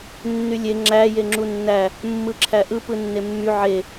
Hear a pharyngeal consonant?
yes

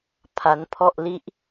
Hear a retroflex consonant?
no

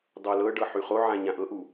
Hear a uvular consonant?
yes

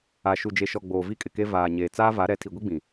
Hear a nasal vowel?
yes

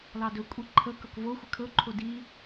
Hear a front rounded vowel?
no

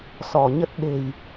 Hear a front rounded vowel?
no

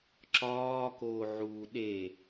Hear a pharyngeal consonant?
yes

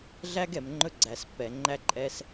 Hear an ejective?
yes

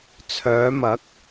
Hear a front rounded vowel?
yes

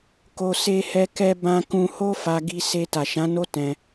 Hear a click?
no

